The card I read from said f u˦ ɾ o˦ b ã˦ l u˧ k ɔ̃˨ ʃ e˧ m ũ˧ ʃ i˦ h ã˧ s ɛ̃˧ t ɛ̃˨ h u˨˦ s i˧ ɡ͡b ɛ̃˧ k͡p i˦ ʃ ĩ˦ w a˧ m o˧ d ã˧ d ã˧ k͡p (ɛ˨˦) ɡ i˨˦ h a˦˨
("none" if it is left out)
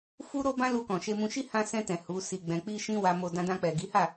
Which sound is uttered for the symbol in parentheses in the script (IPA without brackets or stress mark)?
ɛ˨